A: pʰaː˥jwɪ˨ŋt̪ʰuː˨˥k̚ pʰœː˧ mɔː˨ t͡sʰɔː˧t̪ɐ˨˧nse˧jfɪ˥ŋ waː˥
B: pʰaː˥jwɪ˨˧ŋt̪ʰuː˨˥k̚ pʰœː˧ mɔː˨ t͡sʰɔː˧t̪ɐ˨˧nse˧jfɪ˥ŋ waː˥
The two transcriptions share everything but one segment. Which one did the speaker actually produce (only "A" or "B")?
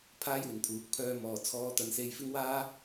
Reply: A